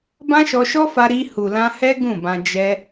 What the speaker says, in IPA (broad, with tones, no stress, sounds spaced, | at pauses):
b ã˦ ʃ ɔ˧ ʃ ɔ˦ f a˧ ɾ i˧ h u˨ l ã˧ h ɛ˦ ɡ ũ˦˨ b ã˧ d͡ʒ ɛ˧